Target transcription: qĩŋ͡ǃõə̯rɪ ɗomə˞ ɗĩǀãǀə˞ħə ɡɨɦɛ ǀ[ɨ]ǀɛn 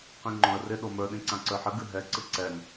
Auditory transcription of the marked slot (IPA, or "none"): ɨ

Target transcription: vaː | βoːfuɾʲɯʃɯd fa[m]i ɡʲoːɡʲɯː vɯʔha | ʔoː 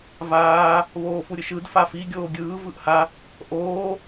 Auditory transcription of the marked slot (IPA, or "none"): f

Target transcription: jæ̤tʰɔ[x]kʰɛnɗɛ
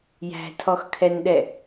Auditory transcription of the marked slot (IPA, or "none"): x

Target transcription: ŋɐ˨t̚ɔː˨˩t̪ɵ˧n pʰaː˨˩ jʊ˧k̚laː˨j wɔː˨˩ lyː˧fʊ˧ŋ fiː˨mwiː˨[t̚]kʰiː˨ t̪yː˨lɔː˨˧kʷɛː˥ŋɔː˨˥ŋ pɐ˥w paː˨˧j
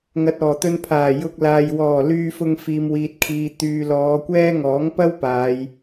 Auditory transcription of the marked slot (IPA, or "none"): t̚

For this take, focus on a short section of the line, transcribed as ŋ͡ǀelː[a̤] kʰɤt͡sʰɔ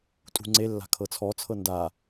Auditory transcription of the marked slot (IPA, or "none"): a̤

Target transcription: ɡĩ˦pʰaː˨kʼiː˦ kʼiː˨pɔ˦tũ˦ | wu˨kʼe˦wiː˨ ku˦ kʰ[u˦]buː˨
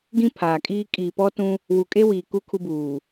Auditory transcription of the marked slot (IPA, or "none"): u˦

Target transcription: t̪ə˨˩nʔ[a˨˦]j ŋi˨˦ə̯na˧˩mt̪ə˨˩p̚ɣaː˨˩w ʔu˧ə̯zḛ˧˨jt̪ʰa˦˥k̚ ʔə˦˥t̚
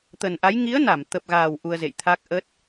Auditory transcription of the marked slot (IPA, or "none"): a˨˦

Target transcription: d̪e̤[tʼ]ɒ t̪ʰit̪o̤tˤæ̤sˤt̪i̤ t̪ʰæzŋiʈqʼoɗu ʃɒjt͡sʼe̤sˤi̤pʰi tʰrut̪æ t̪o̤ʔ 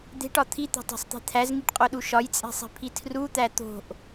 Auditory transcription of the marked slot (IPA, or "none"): ʈ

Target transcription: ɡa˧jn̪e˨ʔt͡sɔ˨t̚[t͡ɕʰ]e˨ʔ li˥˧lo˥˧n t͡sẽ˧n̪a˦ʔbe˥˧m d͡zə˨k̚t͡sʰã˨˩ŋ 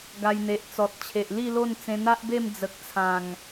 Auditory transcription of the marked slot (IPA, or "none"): t͡ɕʰ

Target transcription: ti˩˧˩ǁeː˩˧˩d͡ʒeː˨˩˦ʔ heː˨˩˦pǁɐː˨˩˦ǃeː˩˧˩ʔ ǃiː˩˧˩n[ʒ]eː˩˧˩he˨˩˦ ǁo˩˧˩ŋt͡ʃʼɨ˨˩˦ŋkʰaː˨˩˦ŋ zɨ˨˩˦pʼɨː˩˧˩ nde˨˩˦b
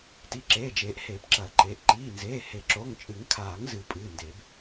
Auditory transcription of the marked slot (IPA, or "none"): z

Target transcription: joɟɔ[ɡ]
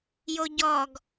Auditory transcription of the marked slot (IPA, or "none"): ɡ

